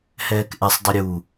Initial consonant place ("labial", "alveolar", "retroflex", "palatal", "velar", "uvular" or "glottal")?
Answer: glottal